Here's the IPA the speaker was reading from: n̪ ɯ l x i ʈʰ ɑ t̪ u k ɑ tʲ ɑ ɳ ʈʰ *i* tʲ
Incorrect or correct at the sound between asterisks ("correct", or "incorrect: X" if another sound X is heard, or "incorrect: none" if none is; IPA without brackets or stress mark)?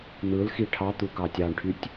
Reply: incorrect: y